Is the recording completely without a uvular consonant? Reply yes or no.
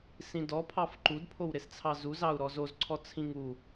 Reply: yes